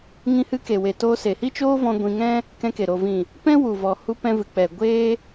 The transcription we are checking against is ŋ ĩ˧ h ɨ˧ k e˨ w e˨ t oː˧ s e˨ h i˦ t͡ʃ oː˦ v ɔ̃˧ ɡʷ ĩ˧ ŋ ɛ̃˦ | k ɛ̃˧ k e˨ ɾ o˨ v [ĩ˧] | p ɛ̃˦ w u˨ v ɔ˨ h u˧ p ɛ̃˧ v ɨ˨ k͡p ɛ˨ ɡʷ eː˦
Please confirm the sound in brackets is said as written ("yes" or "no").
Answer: no